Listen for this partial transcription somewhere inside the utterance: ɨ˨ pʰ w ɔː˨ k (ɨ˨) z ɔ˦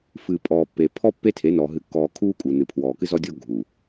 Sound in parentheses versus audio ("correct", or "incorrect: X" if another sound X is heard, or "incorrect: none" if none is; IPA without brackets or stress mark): incorrect: ɨ˦